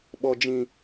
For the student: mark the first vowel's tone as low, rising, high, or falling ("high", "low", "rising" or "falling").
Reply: low